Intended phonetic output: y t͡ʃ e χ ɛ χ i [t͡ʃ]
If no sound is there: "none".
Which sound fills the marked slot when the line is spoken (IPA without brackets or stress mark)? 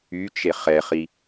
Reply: none